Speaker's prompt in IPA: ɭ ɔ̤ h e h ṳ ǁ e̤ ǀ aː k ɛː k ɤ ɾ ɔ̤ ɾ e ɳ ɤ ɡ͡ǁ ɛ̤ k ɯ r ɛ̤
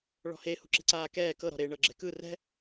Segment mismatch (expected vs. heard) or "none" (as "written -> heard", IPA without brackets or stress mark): none